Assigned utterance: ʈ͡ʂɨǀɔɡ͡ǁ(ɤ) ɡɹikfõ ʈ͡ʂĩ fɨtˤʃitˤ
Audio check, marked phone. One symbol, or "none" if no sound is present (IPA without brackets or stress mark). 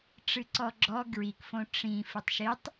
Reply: ɔ